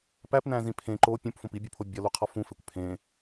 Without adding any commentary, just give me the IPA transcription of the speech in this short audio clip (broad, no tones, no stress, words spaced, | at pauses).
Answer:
pæpnæ̃zĩ pʰẽ ǃo pʲũpfõp ibʲopʰo bʲɒluqʰɒ fũfekʷ pʰẽ